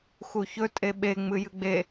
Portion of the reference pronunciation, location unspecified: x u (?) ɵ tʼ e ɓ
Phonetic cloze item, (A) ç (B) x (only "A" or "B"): A